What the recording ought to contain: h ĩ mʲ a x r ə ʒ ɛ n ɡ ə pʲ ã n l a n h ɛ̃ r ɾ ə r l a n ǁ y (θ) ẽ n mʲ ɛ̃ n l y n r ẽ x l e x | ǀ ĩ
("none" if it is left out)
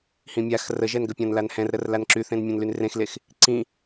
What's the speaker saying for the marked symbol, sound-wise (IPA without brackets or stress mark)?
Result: θ